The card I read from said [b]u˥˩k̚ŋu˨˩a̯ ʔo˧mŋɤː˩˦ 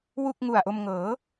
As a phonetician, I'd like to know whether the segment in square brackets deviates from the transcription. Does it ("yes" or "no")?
yes